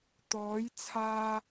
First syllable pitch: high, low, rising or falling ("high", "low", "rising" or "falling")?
rising